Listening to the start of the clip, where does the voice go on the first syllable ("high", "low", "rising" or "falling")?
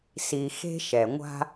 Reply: low